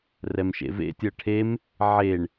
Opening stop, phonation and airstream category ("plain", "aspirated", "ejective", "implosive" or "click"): plain